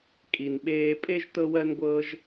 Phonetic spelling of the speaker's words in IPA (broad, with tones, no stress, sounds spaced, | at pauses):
kʼ i˩ n ɓ eː˧ pʼ e˥ ʒ t ɤ˧ w ɜ˧ n ɡʷ ɤː˧ ʒ